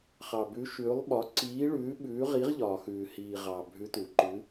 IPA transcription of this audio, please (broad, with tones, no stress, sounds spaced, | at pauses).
χ ɑ˨ b ʉ˧˥ ʃ ʉː˧˥ lˠ ɓ ɒ˧˥ ǀ iː˧˥ ɭ ʉː˧˥ ɓ ʉː˧˥ ʁ i˧˥ ʁ ʎ ɒː˨ x ʉː˨ h iː˨ ʁ ɑ˨ bʱ ʉ˧˥ t u˨ ǃ ʉ˧˥